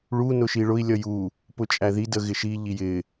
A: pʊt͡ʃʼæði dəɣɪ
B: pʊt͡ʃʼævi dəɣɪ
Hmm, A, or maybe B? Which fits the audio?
A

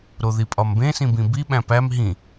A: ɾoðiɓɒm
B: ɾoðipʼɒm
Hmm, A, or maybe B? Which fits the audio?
B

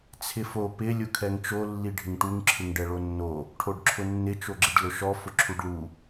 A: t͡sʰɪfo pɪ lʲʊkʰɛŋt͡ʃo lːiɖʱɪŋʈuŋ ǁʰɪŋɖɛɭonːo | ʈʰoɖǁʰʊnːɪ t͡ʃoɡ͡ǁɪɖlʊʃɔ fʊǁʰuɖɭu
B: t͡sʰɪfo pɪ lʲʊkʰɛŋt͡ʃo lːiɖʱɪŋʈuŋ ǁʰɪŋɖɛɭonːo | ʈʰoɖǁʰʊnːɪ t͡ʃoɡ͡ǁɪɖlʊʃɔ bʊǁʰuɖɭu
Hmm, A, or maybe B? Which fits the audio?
A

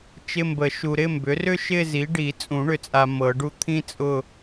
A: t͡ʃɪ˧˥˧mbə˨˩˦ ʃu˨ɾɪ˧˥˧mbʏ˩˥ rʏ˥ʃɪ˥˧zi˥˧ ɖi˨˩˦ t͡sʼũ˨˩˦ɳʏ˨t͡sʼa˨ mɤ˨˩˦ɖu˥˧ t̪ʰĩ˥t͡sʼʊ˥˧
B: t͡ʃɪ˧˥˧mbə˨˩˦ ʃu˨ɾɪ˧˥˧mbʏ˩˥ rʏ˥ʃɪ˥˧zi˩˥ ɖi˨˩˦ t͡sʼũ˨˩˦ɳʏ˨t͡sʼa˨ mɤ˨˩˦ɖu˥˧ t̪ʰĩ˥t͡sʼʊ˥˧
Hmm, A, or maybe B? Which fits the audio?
B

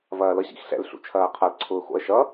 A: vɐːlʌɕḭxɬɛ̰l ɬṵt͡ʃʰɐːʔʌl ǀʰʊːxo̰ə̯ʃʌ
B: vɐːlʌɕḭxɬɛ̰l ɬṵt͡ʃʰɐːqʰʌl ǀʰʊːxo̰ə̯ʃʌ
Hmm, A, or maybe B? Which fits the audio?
B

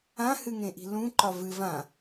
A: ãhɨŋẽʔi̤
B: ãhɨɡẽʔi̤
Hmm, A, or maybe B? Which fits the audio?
A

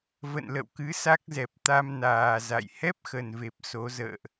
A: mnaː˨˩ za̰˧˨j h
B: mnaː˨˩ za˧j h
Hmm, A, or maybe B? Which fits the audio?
A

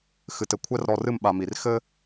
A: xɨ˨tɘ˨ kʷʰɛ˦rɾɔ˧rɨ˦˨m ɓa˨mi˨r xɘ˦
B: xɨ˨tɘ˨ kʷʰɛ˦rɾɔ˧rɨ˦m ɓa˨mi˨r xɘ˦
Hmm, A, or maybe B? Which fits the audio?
A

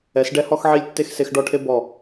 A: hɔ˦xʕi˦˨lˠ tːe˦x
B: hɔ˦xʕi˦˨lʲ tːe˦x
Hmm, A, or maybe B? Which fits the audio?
B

